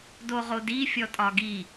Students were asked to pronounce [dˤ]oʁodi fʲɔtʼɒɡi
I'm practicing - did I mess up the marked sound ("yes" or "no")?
yes